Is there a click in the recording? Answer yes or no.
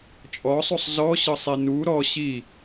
no